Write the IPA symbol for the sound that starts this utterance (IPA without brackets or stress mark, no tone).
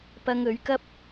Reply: p